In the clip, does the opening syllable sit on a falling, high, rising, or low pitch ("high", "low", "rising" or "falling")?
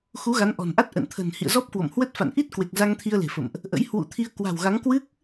rising